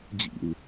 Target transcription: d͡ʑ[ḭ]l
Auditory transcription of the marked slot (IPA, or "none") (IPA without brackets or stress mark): ḭ